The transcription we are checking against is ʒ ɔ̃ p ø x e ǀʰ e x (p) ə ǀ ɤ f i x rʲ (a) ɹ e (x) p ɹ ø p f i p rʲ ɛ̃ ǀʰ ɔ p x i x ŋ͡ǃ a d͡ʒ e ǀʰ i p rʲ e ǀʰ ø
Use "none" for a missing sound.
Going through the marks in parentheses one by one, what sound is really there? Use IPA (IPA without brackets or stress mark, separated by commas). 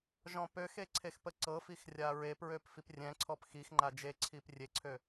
p, a, none